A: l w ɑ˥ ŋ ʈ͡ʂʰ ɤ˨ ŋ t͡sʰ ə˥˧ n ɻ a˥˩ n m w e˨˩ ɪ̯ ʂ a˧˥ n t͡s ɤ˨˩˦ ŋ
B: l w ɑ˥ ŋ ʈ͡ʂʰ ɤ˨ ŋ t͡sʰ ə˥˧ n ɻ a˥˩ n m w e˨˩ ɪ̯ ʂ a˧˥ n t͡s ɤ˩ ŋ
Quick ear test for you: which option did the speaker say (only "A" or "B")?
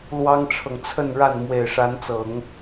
A